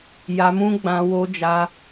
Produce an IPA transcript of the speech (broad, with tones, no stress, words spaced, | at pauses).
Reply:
ja˧mũ˦ɡ͡bã˧ wo˦d͡ʒa˦